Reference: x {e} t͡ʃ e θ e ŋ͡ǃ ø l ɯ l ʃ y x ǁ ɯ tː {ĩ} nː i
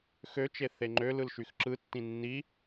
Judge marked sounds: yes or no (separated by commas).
no, yes